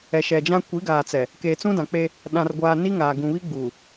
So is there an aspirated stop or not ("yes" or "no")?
no